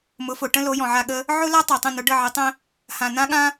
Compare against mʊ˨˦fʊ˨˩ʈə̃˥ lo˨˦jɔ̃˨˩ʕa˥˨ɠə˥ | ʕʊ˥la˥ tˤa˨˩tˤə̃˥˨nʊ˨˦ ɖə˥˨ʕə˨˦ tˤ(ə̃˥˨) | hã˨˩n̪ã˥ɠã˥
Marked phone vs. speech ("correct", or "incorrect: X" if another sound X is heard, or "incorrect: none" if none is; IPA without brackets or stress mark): incorrect: ə̃˥